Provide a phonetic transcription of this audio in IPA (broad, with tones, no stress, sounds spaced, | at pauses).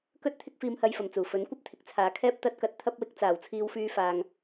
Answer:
k ɵ˥ t̚ t̪ʰ ɪ˥ k̚ f iː˧ m h ɐ˧ j f ɐ˨˩ m t͡s uː˨˩ f ɵ˨˥ n kʷ ɐ˥ p̚ t̪ʰ ɪ˨ k̚ t͡sʰ aː˨ kʰ ɛː˥ p̚ t̪ ɐ˧ t̚ k ɐ˨˥ t̚ t̪ʰ ɐ˥ p̚ w ɪ˧ k̚ t͡s aː˨˩ w t͡sʰ iː˧ w f yː˧ f aː˨ ŋ